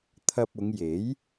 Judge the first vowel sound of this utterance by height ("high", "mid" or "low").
low